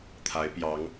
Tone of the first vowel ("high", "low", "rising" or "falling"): rising